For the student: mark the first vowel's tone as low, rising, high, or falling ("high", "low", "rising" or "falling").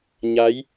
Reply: rising